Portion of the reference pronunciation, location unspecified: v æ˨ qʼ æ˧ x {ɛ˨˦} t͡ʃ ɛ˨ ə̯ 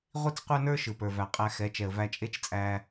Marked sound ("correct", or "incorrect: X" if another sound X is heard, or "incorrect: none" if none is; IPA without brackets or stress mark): correct